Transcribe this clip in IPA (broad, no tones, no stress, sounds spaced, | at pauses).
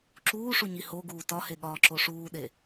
ǁ uː ʂ u ɲ i h o ɡ uː t ɒ h e ɠ ɒː ǁ o ʂ uː ɗ e